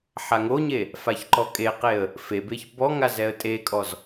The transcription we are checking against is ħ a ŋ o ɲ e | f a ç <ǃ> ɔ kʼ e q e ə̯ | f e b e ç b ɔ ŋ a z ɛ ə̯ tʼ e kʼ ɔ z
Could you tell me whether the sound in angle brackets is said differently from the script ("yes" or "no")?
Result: no